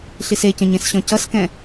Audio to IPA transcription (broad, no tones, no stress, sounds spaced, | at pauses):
ɬ i s e c ə̃ ɲ ẽ s ɕ ɔ̃ c ʌ s k ɛ̃